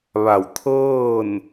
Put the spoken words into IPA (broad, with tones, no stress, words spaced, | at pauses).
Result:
ʋa˧˩wt̪ʰɤː˥˨n